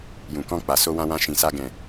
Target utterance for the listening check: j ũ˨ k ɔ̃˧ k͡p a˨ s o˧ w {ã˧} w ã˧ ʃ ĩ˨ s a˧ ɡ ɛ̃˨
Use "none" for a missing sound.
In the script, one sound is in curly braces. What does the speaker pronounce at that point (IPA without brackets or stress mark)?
ã˧